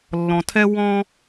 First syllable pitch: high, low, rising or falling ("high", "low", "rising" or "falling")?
low